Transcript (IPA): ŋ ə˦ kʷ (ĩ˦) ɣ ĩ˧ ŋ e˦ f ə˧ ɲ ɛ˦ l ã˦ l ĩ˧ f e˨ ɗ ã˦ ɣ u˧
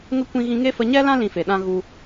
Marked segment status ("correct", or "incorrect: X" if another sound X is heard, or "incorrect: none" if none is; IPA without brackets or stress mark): incorrect: ĩ˧